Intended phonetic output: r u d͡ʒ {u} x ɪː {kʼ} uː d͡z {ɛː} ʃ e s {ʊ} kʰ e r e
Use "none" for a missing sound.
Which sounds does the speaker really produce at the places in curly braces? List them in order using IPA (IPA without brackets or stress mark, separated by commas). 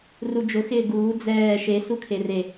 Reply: ʊ, ɡ, ɛː, u